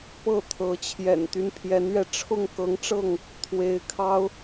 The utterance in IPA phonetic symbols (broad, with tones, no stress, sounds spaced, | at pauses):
p ɤ˥˨ t̪ʰ ɤ˨˦ t͡ɕʰ j ɛ̰˨˩ n t̪ y˦ n pʰ j ɛ˨˦ n ɥ ɛ˧ ʈ͡ʂʰ ʊ˥˨ ŋ k ɤ˨˦ ŋ ʈ͡ʂ ɤ˥˨ ŋ | t̪ʰ w e˨˦ ɪ̯ kʰ ɑ˦ ʊ̯